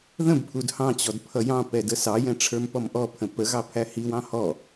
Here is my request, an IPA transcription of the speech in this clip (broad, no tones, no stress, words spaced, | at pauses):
ðə̃bpʰud hɑ̃t͡ɕɔd pʰʌjɑ̃pɛ dəsɑjɛ̃ ʈ͡ʂʰə˞mpɔmʔɔpʰə̃ pəɣɑ pʰæhiwɑ̃ hɔ